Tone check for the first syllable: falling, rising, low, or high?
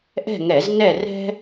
falling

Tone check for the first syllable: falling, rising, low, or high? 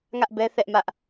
high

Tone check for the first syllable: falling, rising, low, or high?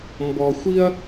low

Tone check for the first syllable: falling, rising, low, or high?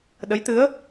rising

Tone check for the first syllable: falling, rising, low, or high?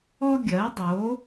high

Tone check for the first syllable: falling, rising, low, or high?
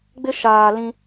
high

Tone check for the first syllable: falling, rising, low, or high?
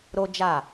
high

